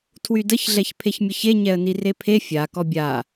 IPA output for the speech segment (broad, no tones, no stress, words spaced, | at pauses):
tʰwydəç ɮɛçpʰeçmʲəçe ɲɛə̯nirepʰe fʲa kɔbʲa